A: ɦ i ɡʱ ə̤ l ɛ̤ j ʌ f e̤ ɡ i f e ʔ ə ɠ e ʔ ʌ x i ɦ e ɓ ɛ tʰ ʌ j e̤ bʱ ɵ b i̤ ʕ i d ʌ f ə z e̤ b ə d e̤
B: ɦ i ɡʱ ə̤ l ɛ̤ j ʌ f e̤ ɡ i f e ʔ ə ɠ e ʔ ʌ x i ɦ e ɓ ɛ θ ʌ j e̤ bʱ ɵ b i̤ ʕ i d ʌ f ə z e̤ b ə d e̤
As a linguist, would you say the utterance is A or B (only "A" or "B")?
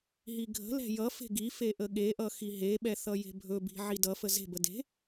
B